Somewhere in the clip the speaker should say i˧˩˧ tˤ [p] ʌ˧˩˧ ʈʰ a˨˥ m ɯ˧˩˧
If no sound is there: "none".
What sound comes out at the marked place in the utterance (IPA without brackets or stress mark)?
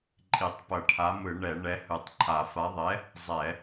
p